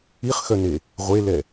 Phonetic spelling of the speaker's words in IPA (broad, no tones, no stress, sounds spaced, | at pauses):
i χ x œ n e | ʁʷ e l ɛ